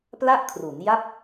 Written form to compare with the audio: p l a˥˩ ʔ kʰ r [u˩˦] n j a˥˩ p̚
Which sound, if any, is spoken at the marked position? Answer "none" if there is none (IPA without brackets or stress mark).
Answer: u˩˦